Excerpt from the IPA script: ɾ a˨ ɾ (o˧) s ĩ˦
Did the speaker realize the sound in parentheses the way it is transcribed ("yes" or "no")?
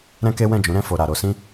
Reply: yes